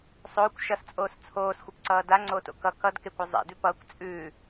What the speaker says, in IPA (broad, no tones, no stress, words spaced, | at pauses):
sˤoːkʷ ʃʌst͡sʼoːs t͡sʰoːsxʷɘpǀʌː daŋ͡ǀoːto̰ kʌ kʌd kekʷʌ zˤḛdʉ pʌːkʷ t͡sʼʉː